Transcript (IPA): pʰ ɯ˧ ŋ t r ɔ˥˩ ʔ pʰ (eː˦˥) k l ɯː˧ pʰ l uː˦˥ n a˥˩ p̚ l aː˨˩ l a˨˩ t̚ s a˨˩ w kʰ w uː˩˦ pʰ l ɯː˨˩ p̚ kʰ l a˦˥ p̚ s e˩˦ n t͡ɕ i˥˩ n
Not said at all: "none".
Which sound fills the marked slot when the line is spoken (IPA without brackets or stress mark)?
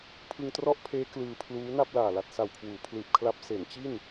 eː˦˥